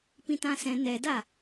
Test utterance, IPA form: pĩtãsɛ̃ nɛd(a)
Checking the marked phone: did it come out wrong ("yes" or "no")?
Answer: no